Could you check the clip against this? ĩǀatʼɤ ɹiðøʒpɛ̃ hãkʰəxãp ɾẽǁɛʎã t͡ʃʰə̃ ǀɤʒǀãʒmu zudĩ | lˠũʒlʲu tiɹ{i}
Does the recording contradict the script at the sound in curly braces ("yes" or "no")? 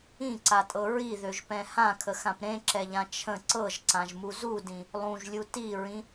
yes